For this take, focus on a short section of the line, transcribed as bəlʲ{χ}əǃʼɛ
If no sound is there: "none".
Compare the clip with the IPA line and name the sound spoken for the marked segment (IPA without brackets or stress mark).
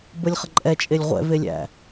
χ